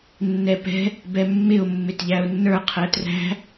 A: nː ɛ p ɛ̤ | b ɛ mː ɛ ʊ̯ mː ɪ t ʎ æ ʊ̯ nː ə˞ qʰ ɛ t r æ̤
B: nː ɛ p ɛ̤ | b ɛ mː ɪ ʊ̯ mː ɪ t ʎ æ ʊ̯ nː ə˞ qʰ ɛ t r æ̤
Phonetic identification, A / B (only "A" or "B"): B